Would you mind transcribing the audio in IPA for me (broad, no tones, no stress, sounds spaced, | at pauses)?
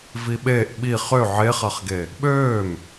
v i ɓ eː ʔ ɓ i χ ø ʕ e χ a χ ɡ e | ɓ øː m